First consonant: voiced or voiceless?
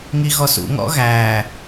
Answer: voiced